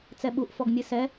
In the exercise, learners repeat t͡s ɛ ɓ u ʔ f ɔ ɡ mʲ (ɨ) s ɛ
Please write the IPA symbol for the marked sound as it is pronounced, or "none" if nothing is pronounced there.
ɨ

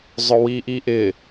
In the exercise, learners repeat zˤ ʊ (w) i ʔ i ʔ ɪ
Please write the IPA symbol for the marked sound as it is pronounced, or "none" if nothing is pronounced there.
w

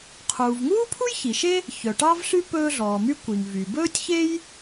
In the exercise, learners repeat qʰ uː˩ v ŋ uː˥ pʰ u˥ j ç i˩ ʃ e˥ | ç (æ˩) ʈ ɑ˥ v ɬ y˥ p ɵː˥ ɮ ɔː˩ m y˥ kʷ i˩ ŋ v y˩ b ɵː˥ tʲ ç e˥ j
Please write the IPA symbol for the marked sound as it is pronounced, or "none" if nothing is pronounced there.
œ˩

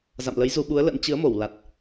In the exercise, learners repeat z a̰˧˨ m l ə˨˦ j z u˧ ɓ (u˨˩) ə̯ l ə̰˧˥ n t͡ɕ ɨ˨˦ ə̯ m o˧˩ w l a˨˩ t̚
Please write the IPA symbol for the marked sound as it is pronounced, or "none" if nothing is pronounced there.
u˨˦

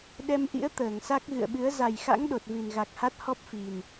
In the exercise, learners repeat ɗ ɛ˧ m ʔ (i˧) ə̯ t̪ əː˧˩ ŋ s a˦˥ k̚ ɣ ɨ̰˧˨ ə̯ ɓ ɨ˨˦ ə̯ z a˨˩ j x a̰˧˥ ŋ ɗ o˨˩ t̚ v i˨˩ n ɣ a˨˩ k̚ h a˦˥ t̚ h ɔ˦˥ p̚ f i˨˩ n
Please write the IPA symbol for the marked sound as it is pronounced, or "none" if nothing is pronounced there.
ḭ˧˥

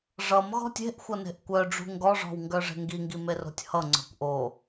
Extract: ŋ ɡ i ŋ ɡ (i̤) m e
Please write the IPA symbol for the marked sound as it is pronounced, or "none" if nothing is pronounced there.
i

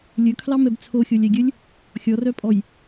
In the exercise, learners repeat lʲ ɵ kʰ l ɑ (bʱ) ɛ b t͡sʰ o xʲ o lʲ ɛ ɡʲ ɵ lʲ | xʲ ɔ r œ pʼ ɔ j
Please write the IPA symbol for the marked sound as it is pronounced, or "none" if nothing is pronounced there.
m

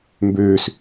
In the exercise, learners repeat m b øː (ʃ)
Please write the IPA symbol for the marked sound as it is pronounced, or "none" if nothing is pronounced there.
s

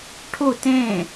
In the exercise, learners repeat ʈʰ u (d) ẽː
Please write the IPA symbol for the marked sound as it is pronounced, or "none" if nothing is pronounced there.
t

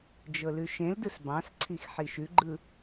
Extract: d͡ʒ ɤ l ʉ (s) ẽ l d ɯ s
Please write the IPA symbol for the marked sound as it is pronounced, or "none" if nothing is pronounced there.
ʃ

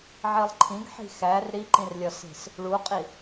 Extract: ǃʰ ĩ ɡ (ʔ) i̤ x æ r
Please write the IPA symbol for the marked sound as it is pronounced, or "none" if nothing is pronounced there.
ħ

